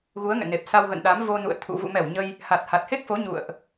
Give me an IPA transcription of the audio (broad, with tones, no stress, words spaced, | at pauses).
ɣu˨˦ə̯ŋɛ̰˧˨ne˨˩p̚ sa˧wɣə̰˧˨nɗa˨˦m vo˧nṵ˧˨ə̯ t̪ʰṵ˧˨ vṵ˧˨mɛ˧˩w ɲə˧j | ha˨˩t̚ha˨˩t̚he˦˥k̚fo˨˦ ɲṵ˧˨ə̯ʔ